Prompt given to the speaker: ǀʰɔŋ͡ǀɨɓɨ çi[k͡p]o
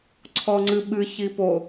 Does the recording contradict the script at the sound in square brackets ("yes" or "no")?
yes